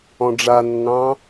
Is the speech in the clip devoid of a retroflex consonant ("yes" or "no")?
no